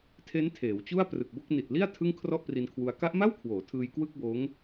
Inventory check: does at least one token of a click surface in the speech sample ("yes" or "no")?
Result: no